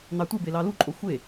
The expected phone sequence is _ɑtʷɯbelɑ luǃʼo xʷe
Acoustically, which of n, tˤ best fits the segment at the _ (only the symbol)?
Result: n